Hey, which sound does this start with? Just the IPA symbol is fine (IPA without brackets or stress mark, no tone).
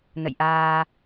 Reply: n